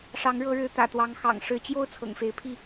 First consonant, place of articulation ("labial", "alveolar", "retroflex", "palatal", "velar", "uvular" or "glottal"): retroflex